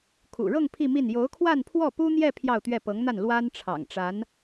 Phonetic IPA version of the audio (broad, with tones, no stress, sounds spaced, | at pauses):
kʰ ṵ˨˩ ɻ ɤ˥˧ ŋ pʰ i˥˧ m i˥˩ n j o˧˥ ʊ̯ kʰ w a˥˧ n pʰ w ɔ˥˩ p u˥ n̪ j ɛ˥˧ pʰ j ɑ˥˧ ʊ̯ t̪ ɥ ɛ˥˩ p ɤ˧˥ ŋ n̪ a˥˩ n l w a˥ n ʈ͡ʂʰ ɑ̰˨˩ ŋ ʈ͡ʂ a˧˥ n